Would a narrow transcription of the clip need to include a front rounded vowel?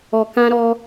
no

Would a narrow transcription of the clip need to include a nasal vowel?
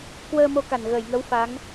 no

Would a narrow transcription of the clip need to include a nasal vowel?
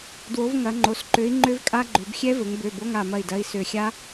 no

